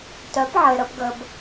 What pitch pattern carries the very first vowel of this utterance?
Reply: rising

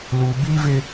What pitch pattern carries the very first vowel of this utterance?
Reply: low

